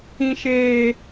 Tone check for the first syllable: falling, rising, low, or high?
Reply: high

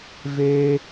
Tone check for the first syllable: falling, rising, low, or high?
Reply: high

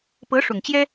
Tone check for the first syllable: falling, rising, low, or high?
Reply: rising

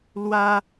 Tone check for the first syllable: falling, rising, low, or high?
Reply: high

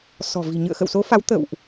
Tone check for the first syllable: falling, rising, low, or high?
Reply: low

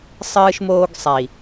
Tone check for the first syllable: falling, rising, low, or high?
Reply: high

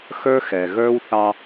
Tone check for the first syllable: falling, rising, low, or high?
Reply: high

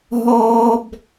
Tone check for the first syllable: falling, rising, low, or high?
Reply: high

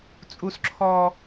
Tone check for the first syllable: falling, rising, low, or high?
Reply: high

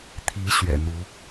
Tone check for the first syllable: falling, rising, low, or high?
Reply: rising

